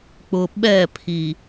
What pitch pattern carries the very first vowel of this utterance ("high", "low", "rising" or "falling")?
low